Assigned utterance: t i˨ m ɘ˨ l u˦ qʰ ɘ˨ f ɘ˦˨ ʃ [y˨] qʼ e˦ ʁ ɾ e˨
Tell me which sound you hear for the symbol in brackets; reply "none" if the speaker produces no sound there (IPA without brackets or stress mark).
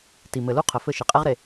i˨